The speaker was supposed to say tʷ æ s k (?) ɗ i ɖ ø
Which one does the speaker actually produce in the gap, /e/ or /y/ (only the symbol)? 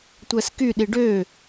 y